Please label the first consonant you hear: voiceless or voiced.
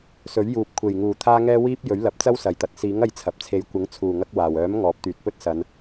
voiceless